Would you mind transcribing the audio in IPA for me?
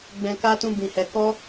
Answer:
ɡ͡b ɛ̃˧ k a˦ t ũ˦ b ĩ˧ h ɛ˧ k ɔ˦

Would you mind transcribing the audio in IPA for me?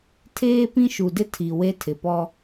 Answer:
tʰ eː˦ p ĩ˦ ʃ u˨ d ɪ˦ tʰ i˨ w e˦ tʰ ɪ˨ p ɔ˦

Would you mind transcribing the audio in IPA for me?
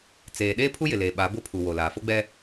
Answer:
t͡s eː˨ ɗ eː˦ pʰ u˦ j ɪ˨ l eː˨ ɓ a˨˦ b ʊ˦ pʰ u˨ w o˨ l aː˨ f o˦ ɡ͡b ɛ˦

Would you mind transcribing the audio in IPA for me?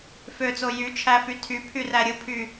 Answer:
f ø t͡s o j y t͡ʃʰ æ f y tʰ y pʰ y r æ ɾʲ ɯ pʰ y

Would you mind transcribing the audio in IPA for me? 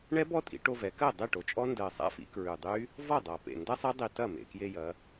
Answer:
ɳ ɛ˦˥ b ɔ˦˥ tʼ ḭ˩˧ ʈ o˧ v ɛ˩˧ k ɜ˥˩ dˤ e˥˩ ʈ o˩˧ t͡ʃʼ ɔ˦˥ n d ɜ˨˩ sˤ a̰˦˥ f ḭ˩˧ k ɹ ʉ˨˩ dˤ y˦˥ | v ɔ˥˩ dˤ a˨˩ p ḛ˨˩ n d ɐ˦˥ sˤ ɐ˦˥ dˤ i˧ t ɐ˥˩ m ḛ˨˩ k j e˧ j ɐ˩˧

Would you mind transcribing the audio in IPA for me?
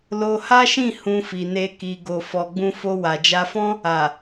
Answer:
l o˧ h a˦ ʃ ĩ˦˨ h ũ˧ f i˨ n e˧ k i˨ ɡ o˨ f ɔ˨ ɡ͡b ũ˧ f o˧ w a˨ d͡ʒ a˧ f ɔ̃˦ | a˨

